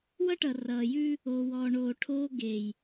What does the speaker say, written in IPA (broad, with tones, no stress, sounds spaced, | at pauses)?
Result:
w ʌ˦ ʈ ʌ˨ r ʌː˨ j ʉ˦ | oː˨ w ɔː˨ ɳ oː˨ ʈʰ oː˦ ɡ e˨ j